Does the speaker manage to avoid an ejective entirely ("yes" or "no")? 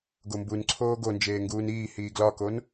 yes